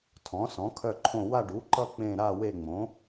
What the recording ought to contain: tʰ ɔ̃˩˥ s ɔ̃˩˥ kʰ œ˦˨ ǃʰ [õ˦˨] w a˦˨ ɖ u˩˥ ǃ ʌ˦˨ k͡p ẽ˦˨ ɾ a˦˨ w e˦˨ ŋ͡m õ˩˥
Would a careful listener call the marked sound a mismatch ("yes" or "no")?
no